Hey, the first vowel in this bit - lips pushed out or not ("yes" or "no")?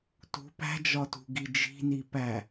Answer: yes